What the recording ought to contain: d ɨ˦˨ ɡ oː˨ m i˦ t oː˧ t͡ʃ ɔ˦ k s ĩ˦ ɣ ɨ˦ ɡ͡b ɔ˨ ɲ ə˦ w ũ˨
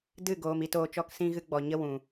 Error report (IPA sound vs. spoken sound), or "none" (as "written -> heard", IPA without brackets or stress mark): none